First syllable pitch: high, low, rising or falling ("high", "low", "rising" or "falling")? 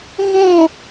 falling